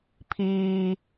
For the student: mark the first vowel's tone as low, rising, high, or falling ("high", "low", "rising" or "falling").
low